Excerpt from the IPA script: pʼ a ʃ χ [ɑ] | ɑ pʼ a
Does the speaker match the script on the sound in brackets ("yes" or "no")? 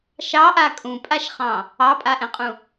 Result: no